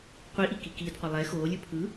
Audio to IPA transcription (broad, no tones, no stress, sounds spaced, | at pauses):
qʷ i ʔ i k i k iː d qʷ ʌ lˠ ɛ x oː lʲ ɯ pʰ ɯ